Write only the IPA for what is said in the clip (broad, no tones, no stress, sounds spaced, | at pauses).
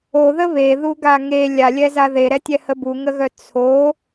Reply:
o ð ə β e ð u ɡ a ŋ e lʲ a lʲ ɛ z a ð e ɾ ɛ tʲ ɛ h ə b u ŋ ə ɣ œ t͡sʰ o